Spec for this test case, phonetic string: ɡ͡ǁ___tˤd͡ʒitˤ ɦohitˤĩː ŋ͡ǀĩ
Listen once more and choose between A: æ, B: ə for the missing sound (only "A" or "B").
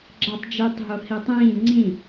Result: A